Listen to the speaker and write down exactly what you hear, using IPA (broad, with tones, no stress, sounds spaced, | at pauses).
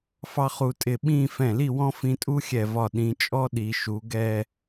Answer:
f ɑ˥ χ u˧ tʼ ɪ˧˩ ɓ ĩ˥˧ f ɛ̃˧˩ l i˥˧ w ɔ̃˥ f ĩ˧ tʼ u˥ xʲ ɛ˧˩ v ɒ˧˩ ɗ ĩ˩˧ t͡ʃʼ ɔ˥ ɗ i˩˧ ʃ u˩˧ ɡ ɛ˥˧